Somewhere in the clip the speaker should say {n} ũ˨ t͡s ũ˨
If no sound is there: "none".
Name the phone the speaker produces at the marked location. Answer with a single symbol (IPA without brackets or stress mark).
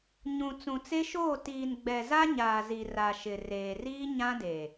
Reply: ɲ